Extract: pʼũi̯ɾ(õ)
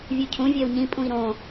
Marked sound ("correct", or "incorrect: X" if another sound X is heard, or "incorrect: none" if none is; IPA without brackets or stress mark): correct